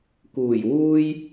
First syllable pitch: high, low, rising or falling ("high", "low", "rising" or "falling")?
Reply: low